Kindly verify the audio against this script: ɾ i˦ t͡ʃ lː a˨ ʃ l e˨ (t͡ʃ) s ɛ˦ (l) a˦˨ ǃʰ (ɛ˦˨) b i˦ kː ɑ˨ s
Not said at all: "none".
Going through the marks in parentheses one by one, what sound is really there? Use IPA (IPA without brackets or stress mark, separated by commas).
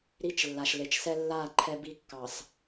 t͡ʃ, lː, ɛ˦